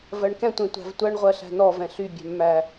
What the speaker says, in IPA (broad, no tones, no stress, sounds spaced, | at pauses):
v ɜ ɳ k ɛ̃ tʷ ẽ tʷ æ̤ v tʷ ɜ ɳ ʁʷ ɜ ɬ æ̤ n ɔ v ɛ̃ ɬ y bʲ æ̤ mː æ